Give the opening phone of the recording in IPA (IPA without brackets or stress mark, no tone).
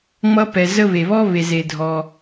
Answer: ŋ͡m